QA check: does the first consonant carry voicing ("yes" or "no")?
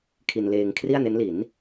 no